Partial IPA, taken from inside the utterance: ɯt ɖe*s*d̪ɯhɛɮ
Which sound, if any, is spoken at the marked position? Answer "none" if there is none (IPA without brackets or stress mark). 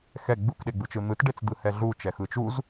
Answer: t͡s